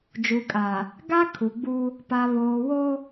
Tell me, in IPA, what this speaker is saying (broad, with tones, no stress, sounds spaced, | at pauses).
d͡ʒ u˨ kʼ a˨ | ɡ a˦ kʰ u˨ ɡ͡b u˦ | p a˨ β oː˨ w o˦